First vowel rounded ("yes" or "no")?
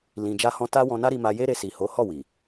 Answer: no